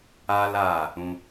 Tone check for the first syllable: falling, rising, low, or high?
high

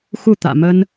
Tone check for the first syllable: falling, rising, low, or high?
falling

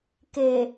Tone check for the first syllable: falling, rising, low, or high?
low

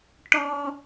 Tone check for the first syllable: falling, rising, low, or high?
high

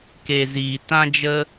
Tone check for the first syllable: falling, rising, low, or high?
low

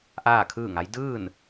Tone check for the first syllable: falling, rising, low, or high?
falling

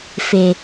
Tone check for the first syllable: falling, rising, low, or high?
low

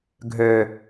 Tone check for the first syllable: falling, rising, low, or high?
low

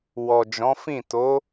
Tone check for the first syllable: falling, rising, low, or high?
low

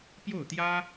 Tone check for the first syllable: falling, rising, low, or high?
falling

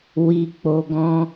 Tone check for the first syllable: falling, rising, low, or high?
low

